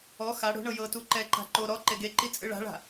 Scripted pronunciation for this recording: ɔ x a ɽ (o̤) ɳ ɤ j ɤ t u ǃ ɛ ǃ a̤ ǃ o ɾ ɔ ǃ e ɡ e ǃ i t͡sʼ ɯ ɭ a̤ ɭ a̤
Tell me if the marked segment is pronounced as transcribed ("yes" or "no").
yes